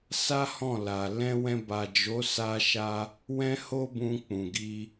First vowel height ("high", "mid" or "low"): low